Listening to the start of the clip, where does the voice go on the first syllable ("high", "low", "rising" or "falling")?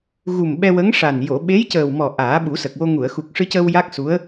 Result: low